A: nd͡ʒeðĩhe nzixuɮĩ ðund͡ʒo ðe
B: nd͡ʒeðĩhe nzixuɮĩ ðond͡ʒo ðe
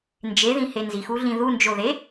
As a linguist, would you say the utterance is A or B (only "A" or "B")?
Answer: A